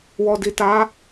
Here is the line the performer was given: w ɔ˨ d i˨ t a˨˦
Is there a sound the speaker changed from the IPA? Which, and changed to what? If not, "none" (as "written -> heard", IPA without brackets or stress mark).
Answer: none